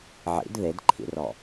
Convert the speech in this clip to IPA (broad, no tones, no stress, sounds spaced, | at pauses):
ʕ ḭ d ð e d ǃʰ ḭ r ɔ